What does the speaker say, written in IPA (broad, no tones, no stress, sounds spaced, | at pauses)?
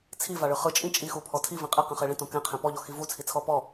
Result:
t͡sʰ i v a ɭ ɯ χ ɯ t͡ʃʼ ĩ t͡ʃʼ i x u pʰ ɔ tʰ i v ĩ qʼ ɛ q ɛ̃ χ e ɭ ĩ t õ k ɛ̃ qʰ ɛ̃ p ɔ ʎ ɔ x i v u t͡sʰ i t͡sʰ ɔ p ɔ